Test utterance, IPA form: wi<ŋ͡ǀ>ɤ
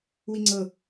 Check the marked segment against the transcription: correct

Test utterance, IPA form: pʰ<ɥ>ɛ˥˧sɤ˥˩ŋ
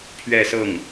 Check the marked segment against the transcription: correct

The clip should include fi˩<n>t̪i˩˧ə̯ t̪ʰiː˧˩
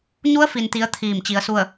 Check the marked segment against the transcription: correct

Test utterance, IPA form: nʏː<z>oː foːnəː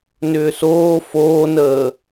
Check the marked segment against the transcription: incorrect: s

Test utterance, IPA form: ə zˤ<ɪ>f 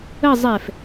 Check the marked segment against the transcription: incorrect: ɛ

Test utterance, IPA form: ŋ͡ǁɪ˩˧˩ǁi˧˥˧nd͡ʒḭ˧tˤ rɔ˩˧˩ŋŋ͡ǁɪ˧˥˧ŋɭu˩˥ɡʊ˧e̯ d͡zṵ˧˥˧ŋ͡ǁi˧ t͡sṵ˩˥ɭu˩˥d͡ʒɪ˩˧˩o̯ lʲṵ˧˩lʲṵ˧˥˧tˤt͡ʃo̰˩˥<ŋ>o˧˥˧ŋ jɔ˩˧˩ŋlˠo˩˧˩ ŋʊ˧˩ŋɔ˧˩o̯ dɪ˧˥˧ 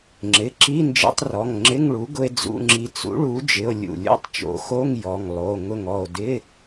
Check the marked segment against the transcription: incorrect: x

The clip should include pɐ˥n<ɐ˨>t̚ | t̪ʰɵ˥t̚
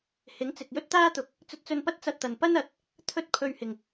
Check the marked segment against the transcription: incorrect: ɐ˨˥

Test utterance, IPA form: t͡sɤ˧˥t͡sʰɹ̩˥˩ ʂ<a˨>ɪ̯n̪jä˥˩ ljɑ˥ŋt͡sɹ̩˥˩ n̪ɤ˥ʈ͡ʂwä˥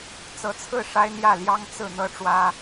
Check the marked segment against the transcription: incorrect: a˥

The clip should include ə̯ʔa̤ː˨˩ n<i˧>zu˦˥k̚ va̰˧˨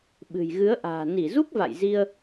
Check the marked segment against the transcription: incorrect: i˧˩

